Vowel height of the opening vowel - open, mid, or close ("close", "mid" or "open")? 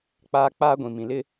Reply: open